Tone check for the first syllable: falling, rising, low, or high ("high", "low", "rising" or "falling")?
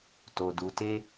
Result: low